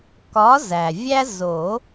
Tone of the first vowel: rising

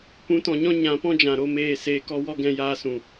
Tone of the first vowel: rising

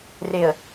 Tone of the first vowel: low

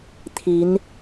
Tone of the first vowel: rising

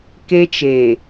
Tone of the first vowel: high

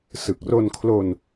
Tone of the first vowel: low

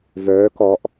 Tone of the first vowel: rising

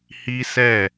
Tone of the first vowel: high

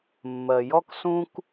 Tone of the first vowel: low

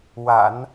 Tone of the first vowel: low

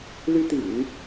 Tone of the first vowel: high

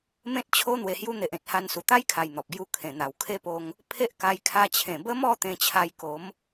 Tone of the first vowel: high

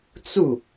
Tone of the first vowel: falling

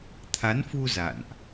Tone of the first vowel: rising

